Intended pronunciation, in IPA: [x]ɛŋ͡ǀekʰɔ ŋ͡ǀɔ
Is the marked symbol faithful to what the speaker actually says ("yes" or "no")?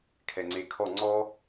no